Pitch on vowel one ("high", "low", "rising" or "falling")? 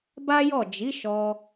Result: high